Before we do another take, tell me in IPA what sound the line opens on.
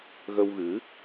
ɣ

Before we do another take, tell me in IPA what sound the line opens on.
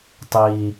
tˤ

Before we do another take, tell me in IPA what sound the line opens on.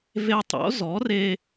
v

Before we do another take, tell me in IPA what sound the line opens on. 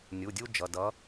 nʲ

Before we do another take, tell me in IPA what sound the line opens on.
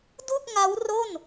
d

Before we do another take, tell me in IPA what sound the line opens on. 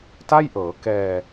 t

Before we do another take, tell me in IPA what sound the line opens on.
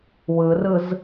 w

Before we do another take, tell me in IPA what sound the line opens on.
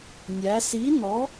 nʲ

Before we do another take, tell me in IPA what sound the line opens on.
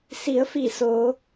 s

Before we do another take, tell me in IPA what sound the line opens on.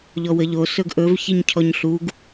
ʎ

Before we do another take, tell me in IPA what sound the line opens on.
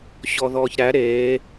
ɕ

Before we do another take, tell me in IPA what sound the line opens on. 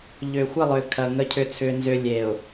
ʎ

